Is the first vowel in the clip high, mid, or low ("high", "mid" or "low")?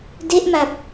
mid